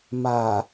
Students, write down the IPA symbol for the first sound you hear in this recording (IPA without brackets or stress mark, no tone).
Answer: m